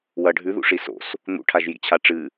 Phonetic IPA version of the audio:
wɐ ɖʱʉðṵʂi so̰s | n̪ṵʈʰaʒjḭt͡ɕʰa ʈ͡ʂɨ

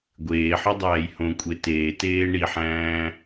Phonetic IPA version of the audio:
ɡʷeːħɒdˤæːj hõkʷʼe teːteː ɳiħæ̃ː

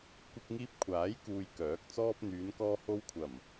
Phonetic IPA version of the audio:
kʷɪ˧k̚ŋiː˧p̚kʷʰaː˨˥jkuː˨j kœː˨˥k̚t͡sɔː˥p̚ n̪yː˨˧nkɔː˧ho˧wkʷʰɐ˨˩m

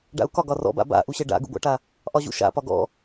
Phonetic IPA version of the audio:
ɖa̰u̯kɒ ɡɒrɔ̰ba̰ ba̰ʔuɕɛ ɖa̰ɡṵɡʷa̰ʈa | ʔɒʑṵʃa̰pɒ ɡɔ̰

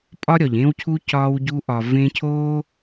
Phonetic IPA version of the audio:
pʼɒ˦ɾʲɒ˨ʎẽ˦w cʰu˦ cɒː˧wɟu˧ʔɒ˨ vẽ˦ cʰoː˦

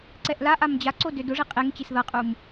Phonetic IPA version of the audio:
ǀɛʔlaʔam d͡ʑaǀo dødʊʐi qʼeŋt͡ɕis ðʌqʼum

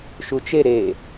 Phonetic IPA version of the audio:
ʃut͡ʃe ɾe

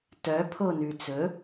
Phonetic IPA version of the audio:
tœpʰonʉ t͡sɵ

